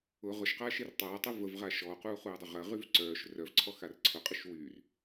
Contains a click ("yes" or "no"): yes